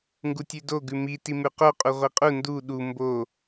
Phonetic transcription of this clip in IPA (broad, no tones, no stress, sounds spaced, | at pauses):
ŋ ɡ u tʲ ʉ d o ɡ ʉ m i t i m ʉ q o qʼ u ʁʷ i qʼ u n d u ɗ u m b o